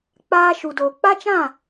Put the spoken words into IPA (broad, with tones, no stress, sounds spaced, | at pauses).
k͡p aː˧ ʃ u˨ d oː˨ k͡p a˦ t͡ʃ ã˦˨